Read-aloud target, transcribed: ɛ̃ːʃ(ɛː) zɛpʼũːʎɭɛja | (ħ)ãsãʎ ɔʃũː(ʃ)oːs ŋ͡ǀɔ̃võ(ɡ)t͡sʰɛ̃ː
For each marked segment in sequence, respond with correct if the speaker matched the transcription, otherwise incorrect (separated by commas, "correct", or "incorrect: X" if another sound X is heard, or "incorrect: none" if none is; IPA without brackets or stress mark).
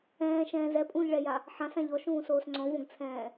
incorrect: ɛ̃ː, correct, incorrect: s, correct